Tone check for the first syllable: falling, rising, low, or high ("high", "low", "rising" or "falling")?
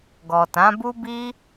low